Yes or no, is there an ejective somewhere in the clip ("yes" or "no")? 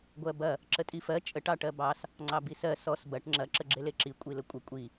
yes